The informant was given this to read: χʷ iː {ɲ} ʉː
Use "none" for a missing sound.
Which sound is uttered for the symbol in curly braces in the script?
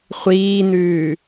n̪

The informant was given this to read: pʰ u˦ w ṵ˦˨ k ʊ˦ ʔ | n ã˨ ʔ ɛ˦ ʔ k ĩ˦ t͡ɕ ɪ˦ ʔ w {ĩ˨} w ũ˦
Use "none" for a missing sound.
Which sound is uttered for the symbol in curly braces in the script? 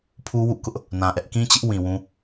ĩ˨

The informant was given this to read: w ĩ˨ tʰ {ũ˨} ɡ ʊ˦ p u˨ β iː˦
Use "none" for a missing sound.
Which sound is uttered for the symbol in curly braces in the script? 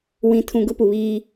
ũ˨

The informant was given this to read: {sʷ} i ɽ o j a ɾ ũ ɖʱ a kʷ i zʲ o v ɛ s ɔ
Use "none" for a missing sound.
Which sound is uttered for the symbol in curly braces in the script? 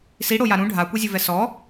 s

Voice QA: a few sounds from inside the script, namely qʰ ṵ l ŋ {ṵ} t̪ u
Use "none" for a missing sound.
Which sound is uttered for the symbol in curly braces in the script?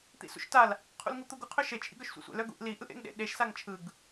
u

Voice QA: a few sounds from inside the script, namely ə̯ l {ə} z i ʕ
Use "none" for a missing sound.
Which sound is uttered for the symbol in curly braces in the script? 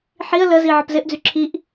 ə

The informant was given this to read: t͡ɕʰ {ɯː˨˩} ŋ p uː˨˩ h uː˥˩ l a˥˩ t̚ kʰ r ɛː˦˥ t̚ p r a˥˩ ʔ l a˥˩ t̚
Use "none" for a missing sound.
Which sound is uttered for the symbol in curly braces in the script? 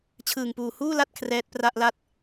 ɯː˨˩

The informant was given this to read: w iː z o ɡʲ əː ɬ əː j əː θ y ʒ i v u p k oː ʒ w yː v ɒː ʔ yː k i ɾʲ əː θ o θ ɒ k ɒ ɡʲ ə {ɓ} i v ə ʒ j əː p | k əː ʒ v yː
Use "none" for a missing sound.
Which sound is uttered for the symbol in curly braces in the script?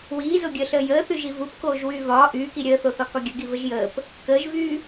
ɡ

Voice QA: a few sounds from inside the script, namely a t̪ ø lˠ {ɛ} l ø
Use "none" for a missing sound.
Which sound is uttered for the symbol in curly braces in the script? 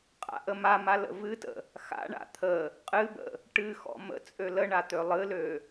ɨ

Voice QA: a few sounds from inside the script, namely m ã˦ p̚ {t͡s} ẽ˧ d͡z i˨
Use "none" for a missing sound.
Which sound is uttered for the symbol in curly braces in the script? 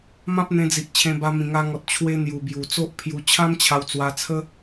n̪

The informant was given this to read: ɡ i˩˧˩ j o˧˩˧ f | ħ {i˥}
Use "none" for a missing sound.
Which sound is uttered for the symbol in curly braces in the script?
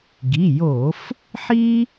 i˥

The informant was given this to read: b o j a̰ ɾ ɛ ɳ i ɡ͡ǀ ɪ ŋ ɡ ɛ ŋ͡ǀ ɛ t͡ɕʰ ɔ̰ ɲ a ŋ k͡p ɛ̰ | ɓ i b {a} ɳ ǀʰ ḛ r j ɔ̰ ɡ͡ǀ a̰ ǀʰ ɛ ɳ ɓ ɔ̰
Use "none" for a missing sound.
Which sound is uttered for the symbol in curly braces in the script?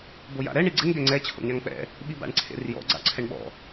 a̰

